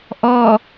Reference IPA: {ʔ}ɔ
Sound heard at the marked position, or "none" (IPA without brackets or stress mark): ʔ